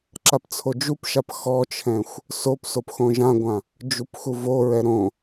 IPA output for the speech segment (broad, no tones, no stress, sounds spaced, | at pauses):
ǁ a p t͡sʰ o d͡ʒ u p ʃ a p x ɔ t͡ʃʰ ɛ̃ xʷ | s o p s o p x õ ʒ ã ɡʷ ã | d͡ʒ u p x u v o ɹ ɛ ɾ õ